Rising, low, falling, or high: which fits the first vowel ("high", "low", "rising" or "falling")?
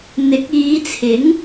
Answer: rising